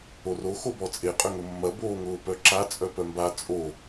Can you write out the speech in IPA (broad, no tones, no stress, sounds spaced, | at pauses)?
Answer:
o r o x o b ɔ t͡sʼ e qʼ ʏ ŋ ʊ mː ɐ b oː ŋ ʊː p œ ǁ a t͡sʼ œ p œ m b a t͡sʼ o